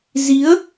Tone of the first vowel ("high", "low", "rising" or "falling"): rising